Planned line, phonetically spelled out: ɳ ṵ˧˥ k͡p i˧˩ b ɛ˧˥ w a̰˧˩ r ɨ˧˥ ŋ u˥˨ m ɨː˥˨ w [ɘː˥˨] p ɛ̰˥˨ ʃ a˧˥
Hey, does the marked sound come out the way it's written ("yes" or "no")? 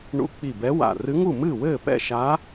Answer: yes